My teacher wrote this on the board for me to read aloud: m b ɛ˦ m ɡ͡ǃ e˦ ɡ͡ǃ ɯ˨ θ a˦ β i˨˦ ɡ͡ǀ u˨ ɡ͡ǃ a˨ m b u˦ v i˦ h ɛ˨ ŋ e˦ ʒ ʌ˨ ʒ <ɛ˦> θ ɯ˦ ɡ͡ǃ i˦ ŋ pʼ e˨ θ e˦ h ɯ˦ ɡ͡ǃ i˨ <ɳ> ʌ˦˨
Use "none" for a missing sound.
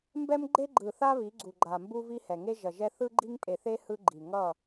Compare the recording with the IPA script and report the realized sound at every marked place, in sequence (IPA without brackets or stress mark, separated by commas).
ɛ˦, ŋ